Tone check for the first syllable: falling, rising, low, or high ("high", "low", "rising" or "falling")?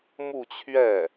falling